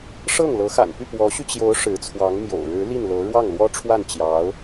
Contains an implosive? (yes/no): no